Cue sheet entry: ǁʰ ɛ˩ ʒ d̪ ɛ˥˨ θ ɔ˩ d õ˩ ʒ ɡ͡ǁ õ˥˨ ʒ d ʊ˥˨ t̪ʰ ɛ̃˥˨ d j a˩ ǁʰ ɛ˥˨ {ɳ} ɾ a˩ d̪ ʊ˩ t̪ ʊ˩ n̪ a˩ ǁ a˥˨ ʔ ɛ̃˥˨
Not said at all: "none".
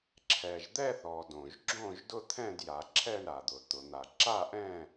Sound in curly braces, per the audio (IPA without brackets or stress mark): ɳ